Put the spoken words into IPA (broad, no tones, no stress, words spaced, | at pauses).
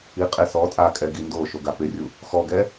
iqʼe sɔ tʼakʼɛ ɡindoʃo ɡapɪrʲu | xɔɡɛ